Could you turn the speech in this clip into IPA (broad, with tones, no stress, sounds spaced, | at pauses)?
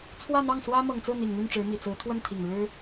t͡sʰ w ä˥˧ n̪ ɑ˥˩ ŋ s w ä˥ m ɤ˨˩ ŋ t͡s ɹ̩˥˩ n̪ i˨˩ ŋ n̪ y˥˩ n ʈ͡ʂ ɻ̩˧˥ m i˨˩ t͡s ɹ̩˧˥ t̪ʰ w ə˥˩ n t̪ʰ i˨˩ ŋ ɻ ɻ̩˥